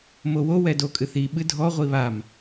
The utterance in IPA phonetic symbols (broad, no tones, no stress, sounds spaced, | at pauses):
m o w o w ɛ d o kʼ ɨ θ i ɓ ɨ dʱ ɔ ʁʷ i β a m